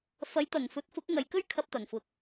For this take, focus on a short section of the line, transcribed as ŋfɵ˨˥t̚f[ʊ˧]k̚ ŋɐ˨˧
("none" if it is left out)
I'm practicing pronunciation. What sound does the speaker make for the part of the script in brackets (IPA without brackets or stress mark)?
ʊ˨˥